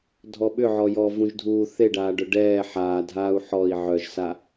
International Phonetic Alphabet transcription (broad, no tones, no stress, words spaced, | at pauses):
dʱɔɓʏʕɔ jɔːvũʒdʱuː θeɖaːɖœ ɖɛː ħaːdʱaːu̯ ħɔi̯ ʕœʒsa